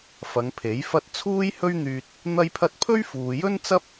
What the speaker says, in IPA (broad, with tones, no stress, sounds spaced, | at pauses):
f ɐ˨˧ ŋ pʰ e˨˥ j f ɐ˥ t̚ t͡sʰ uː˥ j h ɵ˥ ɥ n̪ yː˧ t̚ | n̪ ɐ˥ j pʰ ɐ˥ t̚ pʰ ɵ˥ ɥ f uː˨ j ɵ˥ n t͡s ɐ˥ p̚